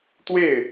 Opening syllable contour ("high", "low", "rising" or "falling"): falling